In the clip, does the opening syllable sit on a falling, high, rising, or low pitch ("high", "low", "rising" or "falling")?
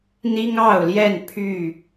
high